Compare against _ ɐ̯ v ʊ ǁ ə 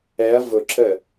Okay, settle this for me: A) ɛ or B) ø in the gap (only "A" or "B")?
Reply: A